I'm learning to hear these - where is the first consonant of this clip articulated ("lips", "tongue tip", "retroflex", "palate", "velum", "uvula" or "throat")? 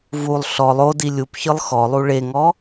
lips